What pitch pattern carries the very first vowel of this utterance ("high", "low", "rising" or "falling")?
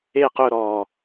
falling